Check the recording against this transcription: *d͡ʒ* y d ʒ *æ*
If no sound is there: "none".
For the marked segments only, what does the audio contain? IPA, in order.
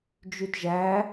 d͡ʒ, æ

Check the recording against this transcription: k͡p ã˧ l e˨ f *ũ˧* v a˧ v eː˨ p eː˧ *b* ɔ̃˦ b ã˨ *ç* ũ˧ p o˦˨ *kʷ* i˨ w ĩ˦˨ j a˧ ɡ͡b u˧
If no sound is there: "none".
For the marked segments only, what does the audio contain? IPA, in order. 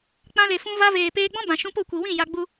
ũ˧, ɡ͡b, ʃ, kʷ

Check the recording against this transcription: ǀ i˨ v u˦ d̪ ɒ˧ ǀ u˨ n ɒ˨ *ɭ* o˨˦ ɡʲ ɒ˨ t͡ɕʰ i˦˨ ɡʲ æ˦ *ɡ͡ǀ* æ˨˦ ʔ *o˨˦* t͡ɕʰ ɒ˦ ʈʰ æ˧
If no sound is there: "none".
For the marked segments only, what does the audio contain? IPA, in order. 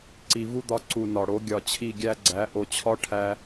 ɽ, ɡ͡ǀ, o˨

